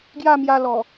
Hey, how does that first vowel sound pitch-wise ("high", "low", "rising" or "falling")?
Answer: falling